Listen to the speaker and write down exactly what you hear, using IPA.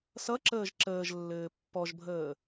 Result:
s ʌ ǁ əː ʒ ǁ əː ʒ lː ɘː pː ɔ ʒ bʱ əː

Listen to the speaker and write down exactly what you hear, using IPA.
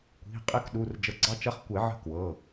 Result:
kʷ i̤˩˧˩ qʼ ɪ˧˥ k ɗ u˩˧˩ r d͡ʒ ə˨˩˦ ɡ͡ǀ ɑ˧˥ t͡ʃ ɐ˧˥ χ kʷ ɛ˨˩˦ ʕ ə̤˧˥ k w ɤ˩˧˩

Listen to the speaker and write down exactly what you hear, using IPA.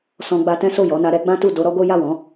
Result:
s ɔ̃˧ ɡ͡b a˧ t ɛ̃˦ s o˦˨ j ɔ˨˦ n a˧ ɾ ɛ˦ ɡ͡b ã˦ t u˦˨ d o˧ ɾ ɔ˦ ɡ o˦ j a˦˨ w ɔ̃˨˦

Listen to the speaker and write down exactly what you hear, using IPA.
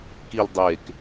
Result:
k i l dˤ e k

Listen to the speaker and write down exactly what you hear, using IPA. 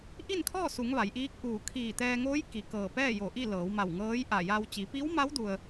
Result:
ʔ i˥˨ n kʰ ɔː˥˨ s u˩˧ ŋ ʋ a˩˧ j ʔ iː˧˥ k̚ ʔ uː˧˩ kʰ iː˧˩ t̪ ɛː˧ ŋ oː˧˥ j k i˩ k ɤː˧˩ p ɛː˥˨ j o˧˩ ʔ i˥˨ l ɤː˩˧ w m a˧˩ w ŋ ɤː˧˥ j ʔ a˧˩ j a˧ w t͡ɕ i˩˧ p i˧˥ w m a˧˥ w d u˧ ə̯

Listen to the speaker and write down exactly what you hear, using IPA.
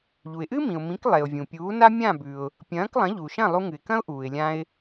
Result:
ʎ u˩ ɪ̯ ʔ ɨ˥ m ĩ˩ ʊ̯ m ĩ˩˥ k lˠ e˩ ʊ̯ vʲ ũ˩ pʲ uː˩˥ n a˥ mʲ ã˥˩ b ʉ˩ ʊ̯ | pʲ ɐ̃ː˩˥ k lˠ ɐ̃˩˥ ʎ u˩ ʃ ɐ̃˥˩ lˠ u˧ ŋ ɨ˩ ɪ̯ k ɐ̃˥ ʊ̯ ʔ uː˩ ɪ̯ lʲ ã˧ ɪ̯

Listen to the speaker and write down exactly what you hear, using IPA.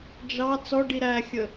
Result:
d͡ʒ ɑ t͡s ɔ ɖ i ɾ æ xʲ ə

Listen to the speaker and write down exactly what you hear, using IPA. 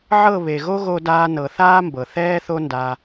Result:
ʕ ɤ˦˨ β e˨ ɣ o˦ ɣ o˧ d aː˧ n ɤ˨ θ aː˦ m b ɤ˨ θ ɛː˦ θ o˦ n d a˧

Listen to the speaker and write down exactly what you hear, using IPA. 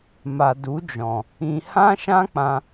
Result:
m a˨ d u˨˦ d͡ʒ ɔ̃˨ | ĩ˨ h ã˦ ʃ ã˦ k͡p ã˧

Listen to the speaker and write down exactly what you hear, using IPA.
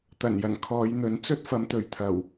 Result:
t̪ ɐ˨˩ n j ɐ˨˩ n kʰ ɔː˨˧ j n̪ ɵ˨˥ n t͡s ɵ˥ t̚ f ɐ˨˧ m t̪ ɵ˨˩ ɥ t̪ʰ ɐ˨˩ w

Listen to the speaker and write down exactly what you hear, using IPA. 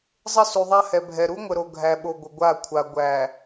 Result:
zˤ ə˦ s u˨ ðˤ a˦ h ɛ˨ bʱ ɛ˨ ɾ u˦ ŋʷ ə˨ ɾ o˨ ɡʱ æ˨ ɓ o˨ ɡʷ ə˨ ɡʷ a˦˨ kʷʰ a˨ ɡʷ æ˨

